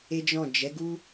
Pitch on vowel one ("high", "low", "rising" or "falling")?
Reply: high